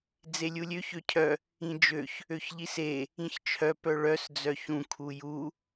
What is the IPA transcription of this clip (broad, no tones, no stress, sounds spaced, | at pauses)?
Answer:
d͡z e lʲ u lʲ ø ç ø cʰ œ | ĩ d͡ʒ ø ç | ø ç ʎ i s e | ĩ ç t͡ʃʰ œ p œ ɭ œ s d͡z œ ç ũ kʰ u j u